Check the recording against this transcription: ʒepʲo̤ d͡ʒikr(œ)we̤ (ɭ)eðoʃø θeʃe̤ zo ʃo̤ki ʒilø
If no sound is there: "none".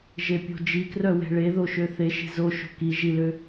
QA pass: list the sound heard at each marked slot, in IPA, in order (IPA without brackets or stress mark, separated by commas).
œ, ɭ